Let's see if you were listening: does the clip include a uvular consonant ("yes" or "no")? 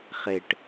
yes